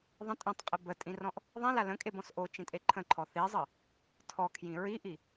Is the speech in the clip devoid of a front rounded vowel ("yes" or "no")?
yes